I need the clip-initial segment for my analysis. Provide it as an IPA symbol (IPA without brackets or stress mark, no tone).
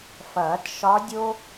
f